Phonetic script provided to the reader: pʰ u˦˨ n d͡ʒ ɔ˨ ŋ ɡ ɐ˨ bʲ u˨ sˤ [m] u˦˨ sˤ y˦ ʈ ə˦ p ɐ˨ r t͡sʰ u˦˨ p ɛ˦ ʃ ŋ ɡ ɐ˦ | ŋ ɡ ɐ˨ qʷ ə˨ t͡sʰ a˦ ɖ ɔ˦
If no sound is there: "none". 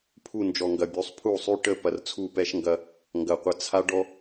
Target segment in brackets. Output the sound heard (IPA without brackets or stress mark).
pʰ